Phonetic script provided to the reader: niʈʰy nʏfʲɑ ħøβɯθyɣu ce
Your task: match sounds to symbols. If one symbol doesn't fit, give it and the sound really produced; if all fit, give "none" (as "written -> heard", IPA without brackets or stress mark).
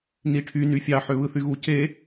ʏ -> y